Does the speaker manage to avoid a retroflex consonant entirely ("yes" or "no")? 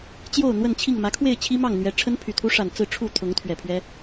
no